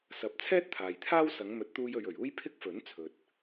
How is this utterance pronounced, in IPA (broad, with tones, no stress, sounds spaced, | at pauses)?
s ɐ˨ p̚ t͡sʰ ɛː˥ t̚ t̪ʰ aː˨ j t̪ʰ aː˥ w s ɐ˨˧ ŋ m ɵ˨˥ t̚ t̪ uː˧ j ɵ˨ ɥ ɵ˨˩ ɥ uː˥ j pʰ ɪ˥ k̚ f ɵ˨˥ n t͡sʰ ɵ˨ t̚